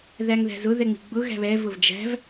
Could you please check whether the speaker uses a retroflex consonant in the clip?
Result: no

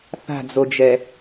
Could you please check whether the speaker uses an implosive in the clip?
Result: no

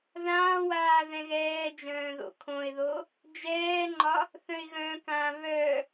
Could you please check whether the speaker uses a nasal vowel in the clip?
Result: yes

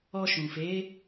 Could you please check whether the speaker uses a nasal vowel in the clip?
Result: yes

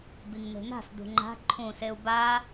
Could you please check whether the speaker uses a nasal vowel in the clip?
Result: yes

